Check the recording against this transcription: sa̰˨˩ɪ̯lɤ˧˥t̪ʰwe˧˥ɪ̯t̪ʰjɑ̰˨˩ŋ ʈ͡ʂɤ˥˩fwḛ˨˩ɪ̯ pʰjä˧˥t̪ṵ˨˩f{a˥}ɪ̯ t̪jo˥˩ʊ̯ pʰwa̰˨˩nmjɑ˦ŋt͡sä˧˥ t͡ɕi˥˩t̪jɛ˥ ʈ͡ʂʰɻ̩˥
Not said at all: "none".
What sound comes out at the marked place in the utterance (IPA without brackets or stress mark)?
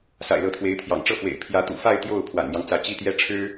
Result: a˥˧